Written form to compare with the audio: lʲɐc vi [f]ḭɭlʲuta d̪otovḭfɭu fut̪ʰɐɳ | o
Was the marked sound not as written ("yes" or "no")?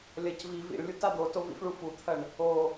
yes